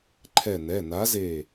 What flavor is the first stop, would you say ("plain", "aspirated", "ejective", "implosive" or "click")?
click